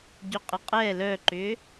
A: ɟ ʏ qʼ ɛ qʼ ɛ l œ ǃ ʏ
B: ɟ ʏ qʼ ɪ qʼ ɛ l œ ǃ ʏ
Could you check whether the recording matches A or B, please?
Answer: B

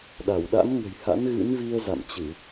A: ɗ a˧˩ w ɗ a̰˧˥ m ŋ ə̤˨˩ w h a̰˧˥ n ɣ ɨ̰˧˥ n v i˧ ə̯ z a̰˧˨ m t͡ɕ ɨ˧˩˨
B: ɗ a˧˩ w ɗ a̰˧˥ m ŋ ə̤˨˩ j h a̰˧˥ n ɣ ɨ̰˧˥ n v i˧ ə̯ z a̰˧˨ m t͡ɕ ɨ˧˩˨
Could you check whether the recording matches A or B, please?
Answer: B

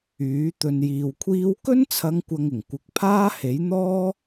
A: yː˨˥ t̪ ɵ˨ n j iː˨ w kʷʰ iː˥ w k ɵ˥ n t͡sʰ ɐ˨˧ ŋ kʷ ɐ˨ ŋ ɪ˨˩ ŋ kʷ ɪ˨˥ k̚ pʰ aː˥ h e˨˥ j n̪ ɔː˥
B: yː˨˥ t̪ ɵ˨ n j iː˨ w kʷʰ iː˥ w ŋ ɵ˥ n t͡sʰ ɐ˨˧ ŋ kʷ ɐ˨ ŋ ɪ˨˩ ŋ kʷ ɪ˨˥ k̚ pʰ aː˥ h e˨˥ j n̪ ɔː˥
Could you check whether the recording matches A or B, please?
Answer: A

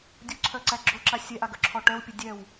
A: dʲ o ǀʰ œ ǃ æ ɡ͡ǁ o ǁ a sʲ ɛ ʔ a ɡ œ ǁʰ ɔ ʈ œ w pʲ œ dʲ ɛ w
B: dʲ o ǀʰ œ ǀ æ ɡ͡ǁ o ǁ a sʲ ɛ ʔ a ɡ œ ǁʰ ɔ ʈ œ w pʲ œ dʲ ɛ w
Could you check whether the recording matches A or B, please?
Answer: B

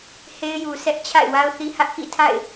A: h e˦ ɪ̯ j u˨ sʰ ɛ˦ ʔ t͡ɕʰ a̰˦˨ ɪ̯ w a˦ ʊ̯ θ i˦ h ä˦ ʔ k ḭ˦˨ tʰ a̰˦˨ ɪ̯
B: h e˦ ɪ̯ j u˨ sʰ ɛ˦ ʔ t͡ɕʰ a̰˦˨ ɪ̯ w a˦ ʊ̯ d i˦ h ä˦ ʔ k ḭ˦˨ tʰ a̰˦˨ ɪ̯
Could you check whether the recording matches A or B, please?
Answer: A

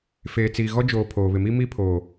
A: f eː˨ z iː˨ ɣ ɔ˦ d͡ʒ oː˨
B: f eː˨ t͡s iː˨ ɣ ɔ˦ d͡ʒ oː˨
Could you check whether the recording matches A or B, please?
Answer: B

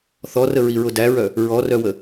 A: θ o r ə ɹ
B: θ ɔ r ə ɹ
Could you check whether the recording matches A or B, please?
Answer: B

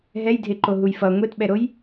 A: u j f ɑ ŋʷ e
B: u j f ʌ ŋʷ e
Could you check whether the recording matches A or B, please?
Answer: B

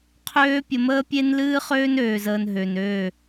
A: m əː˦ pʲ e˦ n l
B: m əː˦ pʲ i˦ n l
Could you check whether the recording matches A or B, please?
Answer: A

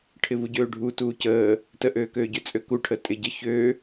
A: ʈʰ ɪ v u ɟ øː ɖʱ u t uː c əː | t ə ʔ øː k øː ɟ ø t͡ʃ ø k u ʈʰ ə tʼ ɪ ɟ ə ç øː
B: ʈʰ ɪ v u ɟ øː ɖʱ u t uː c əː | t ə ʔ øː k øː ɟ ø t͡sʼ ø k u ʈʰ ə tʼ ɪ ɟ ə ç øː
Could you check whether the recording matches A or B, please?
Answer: B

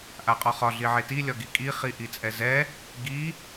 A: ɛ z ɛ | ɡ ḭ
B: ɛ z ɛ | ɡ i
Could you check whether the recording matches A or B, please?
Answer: B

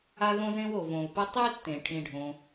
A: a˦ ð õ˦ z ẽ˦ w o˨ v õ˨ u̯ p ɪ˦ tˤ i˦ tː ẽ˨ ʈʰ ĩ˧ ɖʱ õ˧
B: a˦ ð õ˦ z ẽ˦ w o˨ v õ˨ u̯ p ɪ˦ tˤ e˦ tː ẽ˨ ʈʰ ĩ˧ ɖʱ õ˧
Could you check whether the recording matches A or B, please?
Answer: A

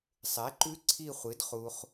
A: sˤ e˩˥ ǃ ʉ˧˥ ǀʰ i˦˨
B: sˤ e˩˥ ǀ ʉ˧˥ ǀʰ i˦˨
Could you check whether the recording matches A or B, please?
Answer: A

